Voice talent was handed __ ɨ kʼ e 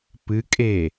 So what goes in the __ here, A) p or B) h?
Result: A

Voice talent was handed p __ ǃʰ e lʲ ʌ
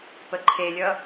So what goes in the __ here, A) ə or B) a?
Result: A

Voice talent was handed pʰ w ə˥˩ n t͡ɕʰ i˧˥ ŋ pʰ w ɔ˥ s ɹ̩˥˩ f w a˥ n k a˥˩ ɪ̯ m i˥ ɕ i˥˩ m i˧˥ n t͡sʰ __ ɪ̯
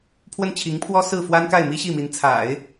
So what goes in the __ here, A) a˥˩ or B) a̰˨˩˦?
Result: B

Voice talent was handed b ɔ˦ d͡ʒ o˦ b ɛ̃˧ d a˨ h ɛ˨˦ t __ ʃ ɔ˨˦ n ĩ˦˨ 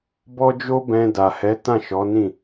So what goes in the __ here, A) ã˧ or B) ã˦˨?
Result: B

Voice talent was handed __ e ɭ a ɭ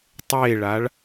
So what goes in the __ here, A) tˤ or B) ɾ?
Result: A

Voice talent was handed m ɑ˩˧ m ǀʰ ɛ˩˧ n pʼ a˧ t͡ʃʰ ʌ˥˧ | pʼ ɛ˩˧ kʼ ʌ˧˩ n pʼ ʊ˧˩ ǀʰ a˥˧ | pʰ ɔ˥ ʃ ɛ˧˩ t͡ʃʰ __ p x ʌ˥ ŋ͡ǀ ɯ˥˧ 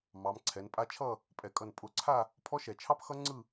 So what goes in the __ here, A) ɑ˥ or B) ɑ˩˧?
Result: A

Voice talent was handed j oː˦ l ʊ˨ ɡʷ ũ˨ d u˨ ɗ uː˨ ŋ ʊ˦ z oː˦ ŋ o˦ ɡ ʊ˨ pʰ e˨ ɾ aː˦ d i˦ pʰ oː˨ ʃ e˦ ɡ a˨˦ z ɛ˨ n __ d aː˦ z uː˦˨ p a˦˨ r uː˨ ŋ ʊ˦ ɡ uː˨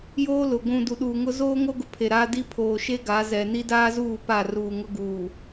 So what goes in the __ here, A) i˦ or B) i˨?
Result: A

